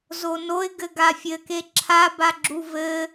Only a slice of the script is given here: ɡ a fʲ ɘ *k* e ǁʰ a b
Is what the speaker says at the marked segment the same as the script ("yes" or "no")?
yes